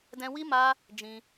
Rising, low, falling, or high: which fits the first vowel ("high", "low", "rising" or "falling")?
high